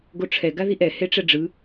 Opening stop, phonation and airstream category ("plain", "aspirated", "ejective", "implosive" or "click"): plain